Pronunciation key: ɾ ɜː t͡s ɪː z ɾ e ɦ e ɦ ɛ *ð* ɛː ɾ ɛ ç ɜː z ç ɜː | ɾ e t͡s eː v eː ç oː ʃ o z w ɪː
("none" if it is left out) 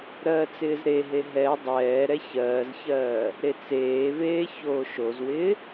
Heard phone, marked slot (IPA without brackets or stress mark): dˤ